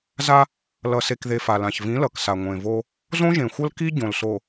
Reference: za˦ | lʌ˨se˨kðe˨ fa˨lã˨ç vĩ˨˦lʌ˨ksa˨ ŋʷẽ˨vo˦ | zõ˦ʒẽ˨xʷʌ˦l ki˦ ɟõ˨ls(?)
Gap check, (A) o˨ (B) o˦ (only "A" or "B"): A